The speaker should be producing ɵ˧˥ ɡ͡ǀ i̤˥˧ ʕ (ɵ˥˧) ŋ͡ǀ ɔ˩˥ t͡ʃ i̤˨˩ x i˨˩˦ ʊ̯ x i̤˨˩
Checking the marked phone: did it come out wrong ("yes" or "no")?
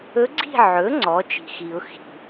yes